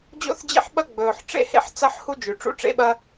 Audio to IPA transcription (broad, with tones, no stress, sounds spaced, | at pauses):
d͡ʑ o̰˥ θ d͡ʑ ḛ˥ ħ ɓ ɐ˥ ɡ͡b ɵː˩ ħ ʈ͡ʂ ḛ˥ h ḛ˥ ħ t͡s ɐ˥ ħ h u˥ d͡ʒ ʉ˩ ʈ͡ʂ ṵ˥ ʈ͡ʂ ḛ˥ ɓ ɐ˥